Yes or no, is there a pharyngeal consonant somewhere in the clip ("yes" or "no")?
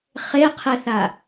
no